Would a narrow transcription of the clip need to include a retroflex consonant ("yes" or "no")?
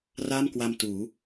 no